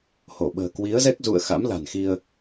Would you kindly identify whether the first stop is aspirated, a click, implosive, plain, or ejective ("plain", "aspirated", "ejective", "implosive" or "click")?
implosive